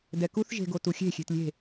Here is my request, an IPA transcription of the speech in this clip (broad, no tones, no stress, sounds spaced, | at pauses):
d ɛ k u θ ʒ e̤ ɡ o t u xʲ e̤ xʲ e̤ t lʲ e̤